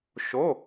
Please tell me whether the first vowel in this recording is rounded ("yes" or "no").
yes